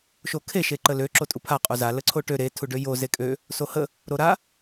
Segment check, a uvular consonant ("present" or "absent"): present